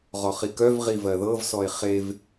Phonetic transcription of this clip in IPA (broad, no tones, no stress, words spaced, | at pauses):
ʁɔχikœvʁi vɜðɤvsɔe̯ χev